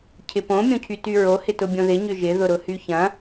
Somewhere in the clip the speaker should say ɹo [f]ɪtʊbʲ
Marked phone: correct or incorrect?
incorrect